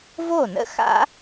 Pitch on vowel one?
falling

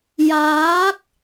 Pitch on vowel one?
rising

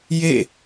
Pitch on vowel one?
falling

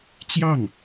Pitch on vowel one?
falling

